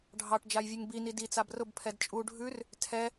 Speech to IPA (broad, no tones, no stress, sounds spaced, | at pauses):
ɖʱ ɑ ʈ d͡ʒ a j vʲ ʉ ŋ b i n i d i t͡s a b r ʊ b pʰ ɛ d t͡ʃʼ u ɖʱ ʉ r | tʰ ɛ